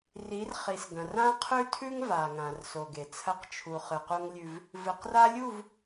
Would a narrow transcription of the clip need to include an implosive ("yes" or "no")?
no